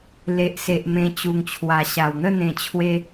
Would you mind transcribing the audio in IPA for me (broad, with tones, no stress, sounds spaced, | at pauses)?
l e˨ ʔ s e˨ ʔ m ẽ˧ t͡ɕ u˨˩ ŋ t͡ɕʰ w a˨˩ ɕ a˨˩ w n̪ ə˥˧ n̪ ẽ˨˩ t͡ɕʰ w e˧